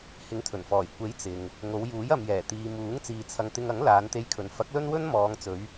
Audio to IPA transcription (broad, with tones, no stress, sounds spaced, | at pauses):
h ɪ˨˥ ŋ t̪ʰ ɵ˨˩ n f ɔː˨˩ j kʷ e˨˥ j t͡s ɪ˨ ŋ | ŋ o˨˧ w j uː˨˥ j ɐ˨ m j ɛː˨˩ t̪ iː˨ m uː˨˥ ŋ t͡s iː˧ t͡sʰ ɐ˧ ŋ t̪ ɪ˧ ŋ ɐ˨˥ ŋ l aː˨˧ n t̪ e˧ j kʰ ɵ˨ n f ɐ˨˥ k̚ l ɵ˥ n w ɵ˥ n m ɔː˨˧ ŋ t͡s ɵ˨˧ ɥ